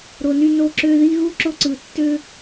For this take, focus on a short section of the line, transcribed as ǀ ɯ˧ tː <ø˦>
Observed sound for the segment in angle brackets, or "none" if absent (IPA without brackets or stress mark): ø˦